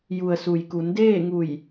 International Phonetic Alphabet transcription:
ju˩ə̯su˩jku˩˧n deː˥˨ŋu˧˩j

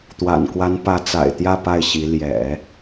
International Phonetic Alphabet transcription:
t̪wa̰˨˩nkwa˧˥n pä˧˥t͡sa̰˨˩ɪ̯t̪jä˥˧ pa˥˩ɪ̯ɕi˧˥ ljɛ̰˨˩˦

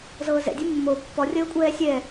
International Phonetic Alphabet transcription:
zɤːzɛ̰dʲɛ mːo pːɔrʲəːkʷʼɛː sʲɛ

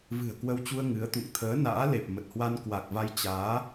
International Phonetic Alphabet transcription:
vɨ̤˨˩ə̯kwə˧wt͡ɕu˧ə̯ ŋɨ˨˦ə̯t̪ṵ˧˨ŋ t̪ʰəː˨˦na̰ː˧˥le˨˩p̚ mə˨˩t̚hwa˧n kwa˨˩k̚va˧j t͡ɕaː˨˦

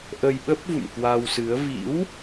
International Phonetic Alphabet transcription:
ʔə˧jɓə˦˥p̚vṵ˧˨m kwa˧wsɨ˨˦ə̯ vḭ˧˥w

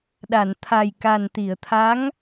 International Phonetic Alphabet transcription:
ɗa˨˩˨nt̪ʰa˨˩j ka˨˩nt̪i˨˩˨ə̯t̪ʰa˧˥ŋ

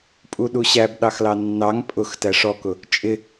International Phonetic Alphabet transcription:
pʼuɗuɕæb ɗɑxlɑnːɑŋ pʼʊx tæʂɔkʊ | t͡ʃʼɪ

